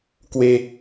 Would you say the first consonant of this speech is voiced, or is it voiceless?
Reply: voiceless